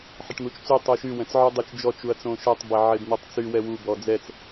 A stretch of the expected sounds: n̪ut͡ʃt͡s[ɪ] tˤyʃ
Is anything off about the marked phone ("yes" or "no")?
yes